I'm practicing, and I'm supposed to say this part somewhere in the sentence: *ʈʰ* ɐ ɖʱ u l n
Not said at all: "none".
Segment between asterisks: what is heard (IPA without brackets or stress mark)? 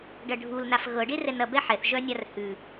ɖ